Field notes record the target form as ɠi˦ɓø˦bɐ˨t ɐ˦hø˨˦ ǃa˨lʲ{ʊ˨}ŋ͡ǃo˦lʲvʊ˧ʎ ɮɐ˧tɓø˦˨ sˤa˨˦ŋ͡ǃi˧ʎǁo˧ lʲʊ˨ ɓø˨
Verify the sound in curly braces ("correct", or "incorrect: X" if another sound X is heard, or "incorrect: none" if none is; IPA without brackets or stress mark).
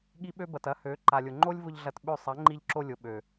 correct